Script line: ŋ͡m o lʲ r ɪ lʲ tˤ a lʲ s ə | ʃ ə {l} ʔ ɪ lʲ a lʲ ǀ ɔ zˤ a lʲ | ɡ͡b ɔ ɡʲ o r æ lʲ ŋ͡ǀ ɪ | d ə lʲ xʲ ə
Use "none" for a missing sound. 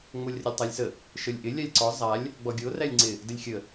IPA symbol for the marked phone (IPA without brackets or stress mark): lʲ